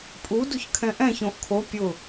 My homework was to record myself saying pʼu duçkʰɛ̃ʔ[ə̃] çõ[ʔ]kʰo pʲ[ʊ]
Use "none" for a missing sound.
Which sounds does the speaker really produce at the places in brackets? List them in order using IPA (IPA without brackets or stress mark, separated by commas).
ɛ̃, ʔ, ʊ